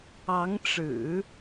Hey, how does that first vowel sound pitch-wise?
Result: rising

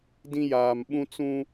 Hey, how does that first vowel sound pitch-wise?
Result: high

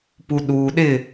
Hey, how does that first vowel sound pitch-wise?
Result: low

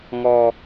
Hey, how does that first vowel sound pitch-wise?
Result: high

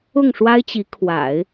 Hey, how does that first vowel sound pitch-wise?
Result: falling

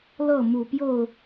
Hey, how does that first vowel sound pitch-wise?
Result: falling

